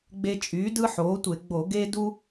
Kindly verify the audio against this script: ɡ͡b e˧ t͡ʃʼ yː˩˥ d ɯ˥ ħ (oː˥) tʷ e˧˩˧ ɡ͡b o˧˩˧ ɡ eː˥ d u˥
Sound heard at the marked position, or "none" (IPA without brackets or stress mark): oː˩˥